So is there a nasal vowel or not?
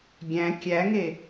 yes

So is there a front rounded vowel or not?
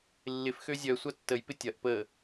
yes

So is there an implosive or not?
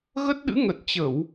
yes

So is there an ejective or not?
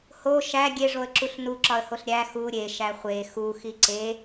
no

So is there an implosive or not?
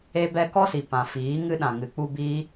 yes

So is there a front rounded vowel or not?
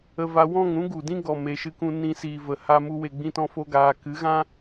no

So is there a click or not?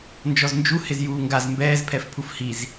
no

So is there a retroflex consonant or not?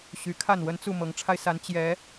yes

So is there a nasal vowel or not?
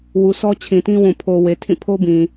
yes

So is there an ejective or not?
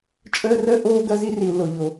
yes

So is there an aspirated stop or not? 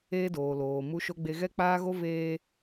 no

